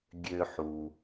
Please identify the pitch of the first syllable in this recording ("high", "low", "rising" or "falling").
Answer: low